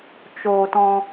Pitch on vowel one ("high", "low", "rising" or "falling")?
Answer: high